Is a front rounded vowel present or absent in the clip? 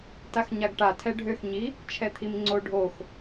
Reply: present